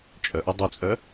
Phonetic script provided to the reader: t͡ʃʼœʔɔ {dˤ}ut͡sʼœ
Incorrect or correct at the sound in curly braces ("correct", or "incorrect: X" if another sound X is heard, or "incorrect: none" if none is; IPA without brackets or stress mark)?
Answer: correct